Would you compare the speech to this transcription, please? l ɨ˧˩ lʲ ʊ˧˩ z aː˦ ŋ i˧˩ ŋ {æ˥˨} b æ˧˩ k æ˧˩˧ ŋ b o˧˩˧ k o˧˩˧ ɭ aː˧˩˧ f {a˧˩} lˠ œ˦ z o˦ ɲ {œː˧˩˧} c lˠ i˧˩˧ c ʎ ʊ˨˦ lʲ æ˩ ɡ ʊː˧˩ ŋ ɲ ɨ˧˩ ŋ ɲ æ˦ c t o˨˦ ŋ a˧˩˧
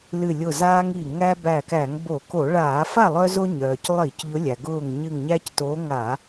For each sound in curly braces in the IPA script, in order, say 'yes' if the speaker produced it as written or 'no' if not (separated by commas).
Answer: no, no, no